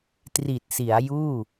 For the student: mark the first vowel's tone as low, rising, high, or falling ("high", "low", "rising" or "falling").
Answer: low